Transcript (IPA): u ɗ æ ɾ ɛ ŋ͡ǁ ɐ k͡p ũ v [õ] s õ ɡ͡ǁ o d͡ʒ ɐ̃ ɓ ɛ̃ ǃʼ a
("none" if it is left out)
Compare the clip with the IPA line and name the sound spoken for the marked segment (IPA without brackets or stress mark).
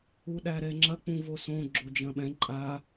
o